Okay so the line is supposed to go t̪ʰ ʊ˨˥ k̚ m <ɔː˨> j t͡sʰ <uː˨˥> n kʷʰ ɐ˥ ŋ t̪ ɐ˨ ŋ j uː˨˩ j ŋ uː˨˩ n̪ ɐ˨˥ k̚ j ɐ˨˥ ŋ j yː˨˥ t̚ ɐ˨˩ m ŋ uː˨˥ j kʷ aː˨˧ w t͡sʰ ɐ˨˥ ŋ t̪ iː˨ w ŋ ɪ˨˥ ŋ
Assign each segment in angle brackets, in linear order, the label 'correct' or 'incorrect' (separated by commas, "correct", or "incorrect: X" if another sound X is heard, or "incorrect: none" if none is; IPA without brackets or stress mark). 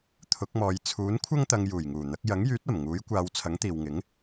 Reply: incorrect: ɔː˨˧, correct